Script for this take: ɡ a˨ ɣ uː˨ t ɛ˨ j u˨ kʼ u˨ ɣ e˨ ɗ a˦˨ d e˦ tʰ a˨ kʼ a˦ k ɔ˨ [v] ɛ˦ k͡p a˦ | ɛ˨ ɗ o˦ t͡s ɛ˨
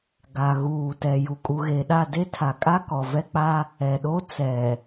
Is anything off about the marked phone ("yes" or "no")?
no